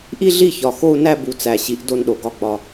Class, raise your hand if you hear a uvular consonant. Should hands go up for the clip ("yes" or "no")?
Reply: no